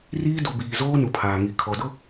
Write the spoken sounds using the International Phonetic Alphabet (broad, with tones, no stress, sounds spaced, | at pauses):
r iː˦ d u˨ b iː˨ z oː˦ n u˨ pʰ aː˨ ŋ i˨ kʰ ɔ˨ d ʊ˦